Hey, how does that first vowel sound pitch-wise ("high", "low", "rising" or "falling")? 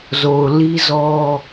low